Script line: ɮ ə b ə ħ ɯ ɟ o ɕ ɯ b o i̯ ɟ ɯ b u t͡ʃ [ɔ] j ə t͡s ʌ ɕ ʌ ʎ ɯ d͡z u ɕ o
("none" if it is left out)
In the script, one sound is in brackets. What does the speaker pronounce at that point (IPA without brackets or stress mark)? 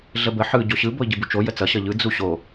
o